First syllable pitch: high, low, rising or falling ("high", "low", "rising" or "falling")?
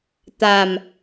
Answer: low